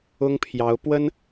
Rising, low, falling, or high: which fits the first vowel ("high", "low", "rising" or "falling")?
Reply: high